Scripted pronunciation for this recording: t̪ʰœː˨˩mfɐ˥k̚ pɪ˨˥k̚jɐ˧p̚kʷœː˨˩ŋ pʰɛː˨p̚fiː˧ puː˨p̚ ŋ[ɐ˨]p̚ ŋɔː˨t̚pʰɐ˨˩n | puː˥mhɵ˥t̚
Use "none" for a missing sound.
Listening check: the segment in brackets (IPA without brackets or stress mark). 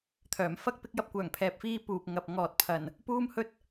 ɐ˨